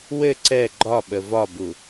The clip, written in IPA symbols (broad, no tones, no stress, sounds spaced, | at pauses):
w ɘ ǀ ɛ ɡ͡ǃ ɒ ɓ ə v ɒ b u